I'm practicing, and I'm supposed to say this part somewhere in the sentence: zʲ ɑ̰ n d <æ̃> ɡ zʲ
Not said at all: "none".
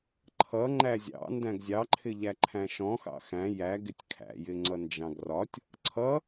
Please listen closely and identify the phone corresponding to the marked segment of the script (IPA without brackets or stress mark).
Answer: æ̃